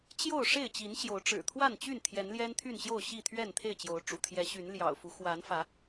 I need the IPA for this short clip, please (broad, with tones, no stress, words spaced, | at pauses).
t͡ɕjo˥˨ʊ̯ ʂe˥˨ɪ̯t͡ɕi˨˦nɕjo˨˦ʊ̯ ʈ͡ʂɻ̩˨˩t̪ʰwa˥˨nt͡ɕy˥˨n t̪ʰjɛ˨˦nljɛ˦nt̪ʰy˥˨n ɕjo˥˨ʊ̯ɕi˥˨t̪ʰɥɛ˥˨nt̪ʰe˥˨ɪ̯ t͡ɕjo˨˦ʊ̯ʈ͡ʂṵ˨˩t̪ʰjɛ˨˦ ɕy˨˦nljɑ̰˨˩ʊ̯fu˨˦ xwa˨˦nfä˨˦